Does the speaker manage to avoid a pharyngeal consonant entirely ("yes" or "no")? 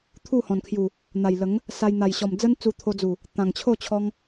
yes